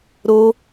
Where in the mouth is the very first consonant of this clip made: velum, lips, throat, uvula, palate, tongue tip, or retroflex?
tongue tip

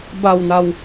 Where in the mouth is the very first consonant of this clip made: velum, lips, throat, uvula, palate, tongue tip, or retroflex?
lips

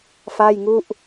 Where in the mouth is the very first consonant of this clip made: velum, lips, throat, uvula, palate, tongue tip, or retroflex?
lips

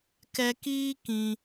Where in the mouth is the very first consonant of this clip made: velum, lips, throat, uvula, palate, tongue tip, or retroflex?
velum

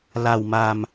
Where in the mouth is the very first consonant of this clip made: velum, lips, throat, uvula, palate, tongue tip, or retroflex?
tongue tip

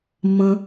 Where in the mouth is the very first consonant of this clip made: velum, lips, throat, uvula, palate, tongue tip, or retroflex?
lips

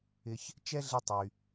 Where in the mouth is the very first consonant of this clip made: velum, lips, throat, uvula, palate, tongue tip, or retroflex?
palate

